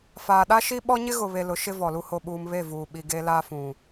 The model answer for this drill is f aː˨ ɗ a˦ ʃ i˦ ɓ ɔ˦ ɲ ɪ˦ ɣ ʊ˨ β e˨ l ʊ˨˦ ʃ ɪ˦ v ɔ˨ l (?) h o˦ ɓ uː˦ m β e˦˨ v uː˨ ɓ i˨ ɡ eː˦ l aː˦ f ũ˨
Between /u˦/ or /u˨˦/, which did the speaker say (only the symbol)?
u˦